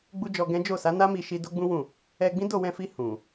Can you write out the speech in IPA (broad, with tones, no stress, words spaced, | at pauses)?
ɡ͡bu˦d͡ʒɔ˧ɡɛ̃˦ d͡ʒo˦˨sa˨˦na˦ mi˧ʃi˧ do˦ɡ͡bũ˦wũ˦˨ | ɛ˧ ɡ͡bĩ˦ do˦˨wɛ̃˧fi˧ hũ˨